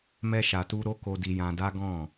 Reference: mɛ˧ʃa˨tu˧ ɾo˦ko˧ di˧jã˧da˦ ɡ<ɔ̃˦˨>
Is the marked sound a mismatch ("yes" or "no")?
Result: no